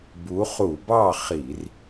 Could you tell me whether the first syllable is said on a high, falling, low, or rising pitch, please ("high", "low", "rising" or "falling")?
rising